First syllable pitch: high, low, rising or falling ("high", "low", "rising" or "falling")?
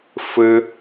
high